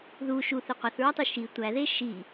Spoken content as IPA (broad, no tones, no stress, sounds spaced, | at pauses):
ð u ʃ u θ e qʷ æ θ ɹ ɒ tˤ u ʃ i tʷ æ ð e ʃ i